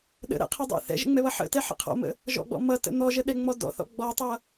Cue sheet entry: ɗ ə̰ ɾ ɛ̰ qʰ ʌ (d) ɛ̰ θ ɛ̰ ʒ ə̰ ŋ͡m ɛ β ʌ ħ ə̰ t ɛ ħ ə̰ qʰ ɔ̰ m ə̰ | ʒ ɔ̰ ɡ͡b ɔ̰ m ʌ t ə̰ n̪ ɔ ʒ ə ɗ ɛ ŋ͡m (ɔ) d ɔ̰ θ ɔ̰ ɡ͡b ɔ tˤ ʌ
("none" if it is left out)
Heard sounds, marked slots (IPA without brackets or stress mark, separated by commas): dˤ, ɔ